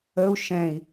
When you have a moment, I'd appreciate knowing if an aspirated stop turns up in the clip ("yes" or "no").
no